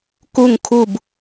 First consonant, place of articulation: velar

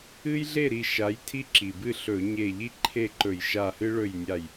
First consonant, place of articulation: palatal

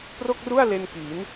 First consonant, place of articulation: labial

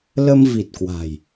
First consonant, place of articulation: alveolar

